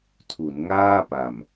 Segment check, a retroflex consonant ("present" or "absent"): absent